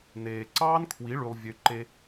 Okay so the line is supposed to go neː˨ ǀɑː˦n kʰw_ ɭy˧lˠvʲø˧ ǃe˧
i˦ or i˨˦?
i˨˦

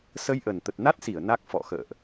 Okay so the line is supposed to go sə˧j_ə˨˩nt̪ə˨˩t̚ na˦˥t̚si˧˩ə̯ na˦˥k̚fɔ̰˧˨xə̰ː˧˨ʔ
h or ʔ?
ʔ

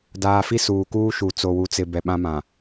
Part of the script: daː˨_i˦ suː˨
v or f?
f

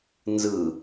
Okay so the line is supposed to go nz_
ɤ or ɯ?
ɯ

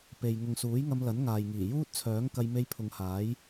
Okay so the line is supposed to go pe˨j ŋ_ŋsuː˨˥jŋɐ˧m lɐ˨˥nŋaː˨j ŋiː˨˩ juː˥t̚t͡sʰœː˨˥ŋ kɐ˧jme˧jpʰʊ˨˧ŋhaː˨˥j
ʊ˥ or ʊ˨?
ʊ˨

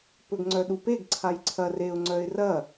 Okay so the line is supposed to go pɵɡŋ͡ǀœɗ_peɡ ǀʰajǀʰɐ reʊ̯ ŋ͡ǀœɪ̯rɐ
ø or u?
u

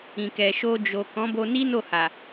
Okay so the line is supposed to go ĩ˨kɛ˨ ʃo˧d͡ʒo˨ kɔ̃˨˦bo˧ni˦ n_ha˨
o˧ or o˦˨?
o˦˨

